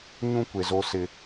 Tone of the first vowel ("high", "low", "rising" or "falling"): high